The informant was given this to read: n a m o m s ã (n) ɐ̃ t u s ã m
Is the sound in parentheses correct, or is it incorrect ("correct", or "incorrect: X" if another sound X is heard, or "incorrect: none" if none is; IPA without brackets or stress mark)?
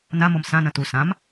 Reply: correct